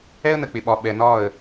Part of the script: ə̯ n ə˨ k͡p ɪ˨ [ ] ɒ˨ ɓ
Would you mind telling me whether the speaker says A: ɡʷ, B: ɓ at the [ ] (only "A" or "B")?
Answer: B